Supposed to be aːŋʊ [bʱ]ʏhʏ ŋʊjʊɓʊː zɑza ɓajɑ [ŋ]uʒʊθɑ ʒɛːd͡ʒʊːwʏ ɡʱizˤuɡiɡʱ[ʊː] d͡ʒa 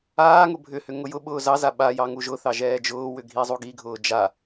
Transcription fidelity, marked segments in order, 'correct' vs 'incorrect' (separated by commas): correct, correct, correct